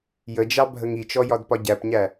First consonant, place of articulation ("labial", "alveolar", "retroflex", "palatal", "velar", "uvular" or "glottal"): palatal